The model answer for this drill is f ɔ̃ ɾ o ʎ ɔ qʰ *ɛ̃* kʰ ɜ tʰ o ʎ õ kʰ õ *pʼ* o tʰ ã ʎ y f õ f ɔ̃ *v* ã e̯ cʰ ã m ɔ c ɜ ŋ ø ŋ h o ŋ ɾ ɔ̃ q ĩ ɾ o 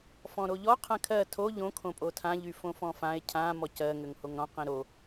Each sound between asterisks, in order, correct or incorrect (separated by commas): correct, correct, incorrect